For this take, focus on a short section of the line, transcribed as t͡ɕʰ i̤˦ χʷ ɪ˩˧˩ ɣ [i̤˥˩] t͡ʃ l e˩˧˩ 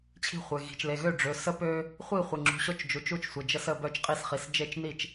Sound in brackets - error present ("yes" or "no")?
yes